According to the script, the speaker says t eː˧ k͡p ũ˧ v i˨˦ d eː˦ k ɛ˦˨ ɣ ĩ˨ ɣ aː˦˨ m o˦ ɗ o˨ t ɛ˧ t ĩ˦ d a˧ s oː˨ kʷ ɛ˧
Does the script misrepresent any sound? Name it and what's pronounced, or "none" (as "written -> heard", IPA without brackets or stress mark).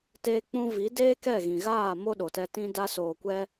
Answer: none